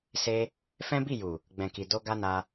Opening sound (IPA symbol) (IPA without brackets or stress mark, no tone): s